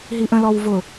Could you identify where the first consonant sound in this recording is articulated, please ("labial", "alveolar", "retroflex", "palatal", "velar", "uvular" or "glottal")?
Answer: glottal